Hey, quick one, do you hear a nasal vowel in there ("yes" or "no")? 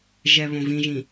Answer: yes